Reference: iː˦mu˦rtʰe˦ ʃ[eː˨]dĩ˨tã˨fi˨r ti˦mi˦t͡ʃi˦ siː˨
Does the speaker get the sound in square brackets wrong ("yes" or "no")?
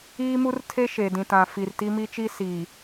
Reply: yes